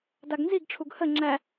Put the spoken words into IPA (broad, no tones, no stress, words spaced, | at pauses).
daɡnziɡʈ͡ʂʰuɡ hə ŋ͡ǁæ